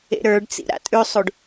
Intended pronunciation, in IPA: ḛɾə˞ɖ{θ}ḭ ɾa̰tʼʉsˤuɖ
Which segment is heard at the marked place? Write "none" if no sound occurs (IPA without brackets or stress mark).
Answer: t͡s